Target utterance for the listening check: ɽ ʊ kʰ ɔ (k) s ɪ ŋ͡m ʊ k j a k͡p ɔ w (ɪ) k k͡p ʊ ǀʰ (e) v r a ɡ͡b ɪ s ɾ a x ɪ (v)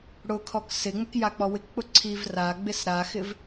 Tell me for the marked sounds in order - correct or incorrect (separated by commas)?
correct, correct, incorrect, correct